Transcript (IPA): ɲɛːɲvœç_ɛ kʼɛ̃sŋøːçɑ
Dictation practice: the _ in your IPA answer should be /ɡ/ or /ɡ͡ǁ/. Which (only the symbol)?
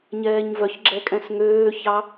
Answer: ɡ͡ǁ